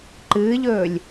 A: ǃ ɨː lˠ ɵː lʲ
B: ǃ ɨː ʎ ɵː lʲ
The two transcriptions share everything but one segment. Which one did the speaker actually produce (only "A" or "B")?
B